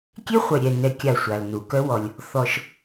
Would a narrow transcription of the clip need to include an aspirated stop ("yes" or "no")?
no